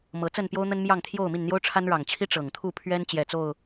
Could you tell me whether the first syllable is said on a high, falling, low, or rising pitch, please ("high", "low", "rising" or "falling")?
rising